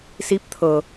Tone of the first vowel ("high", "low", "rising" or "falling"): rising